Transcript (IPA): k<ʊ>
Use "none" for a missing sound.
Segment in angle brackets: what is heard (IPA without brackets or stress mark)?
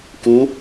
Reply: u